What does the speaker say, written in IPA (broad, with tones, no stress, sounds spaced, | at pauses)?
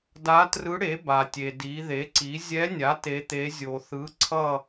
d a˧˥ t r ɯ˧˥ ɽ e˩˥ b a˩ tʲ e˩ d i˩˧ ð e˩˥ ǀ i˩˥ zʲ ɛ˧˥ nʲ a˩˥ t e˩˧ t̪ e˩˧ zʲ o˩ θ ɯ˩˥ ǀʰ ʌ˦˨